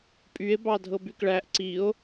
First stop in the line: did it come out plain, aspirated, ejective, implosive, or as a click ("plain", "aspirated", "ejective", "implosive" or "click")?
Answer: ejective